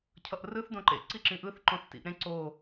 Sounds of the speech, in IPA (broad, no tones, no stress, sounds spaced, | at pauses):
cʰ ʌ ʔ r ɯ θ d õ ǃ ḛ ǀ i ǁ ĩ ʔ ɯ θ ǃ õ θ t ḭ ʔ ɾ ẽ ǀ o